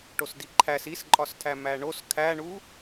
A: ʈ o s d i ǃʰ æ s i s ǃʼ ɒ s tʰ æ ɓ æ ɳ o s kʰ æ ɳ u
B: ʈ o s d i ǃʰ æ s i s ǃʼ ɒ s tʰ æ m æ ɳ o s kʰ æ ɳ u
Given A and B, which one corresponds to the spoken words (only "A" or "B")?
B